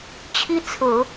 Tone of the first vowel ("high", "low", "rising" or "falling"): high